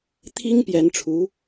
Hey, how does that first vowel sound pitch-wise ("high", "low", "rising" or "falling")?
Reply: high